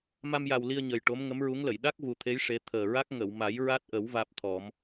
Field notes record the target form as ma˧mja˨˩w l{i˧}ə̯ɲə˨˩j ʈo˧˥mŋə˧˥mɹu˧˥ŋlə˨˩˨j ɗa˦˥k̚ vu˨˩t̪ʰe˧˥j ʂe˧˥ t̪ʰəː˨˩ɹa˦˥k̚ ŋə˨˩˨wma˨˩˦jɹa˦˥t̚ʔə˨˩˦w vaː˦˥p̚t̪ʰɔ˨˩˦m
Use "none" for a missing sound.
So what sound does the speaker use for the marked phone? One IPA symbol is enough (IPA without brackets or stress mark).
i˧